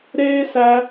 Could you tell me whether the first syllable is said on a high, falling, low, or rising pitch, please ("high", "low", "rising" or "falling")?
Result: high